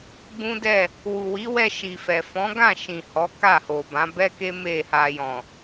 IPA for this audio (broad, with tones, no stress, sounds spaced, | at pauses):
ɡ͡b ũ˦ d ɛ˦˨ | w u˨ w i˨˦ w ɛ˧ ʃ i˨ f ɛ˨ f ɔ̃˨˦ ɡ ã˦˨ ʃ ĩ˨ h ɔ˨˦ k a˦˨ h o˨ b ã˨˦ b ɛ˦ k e˦ m e˦˨ h a˧ j ɔ̃˨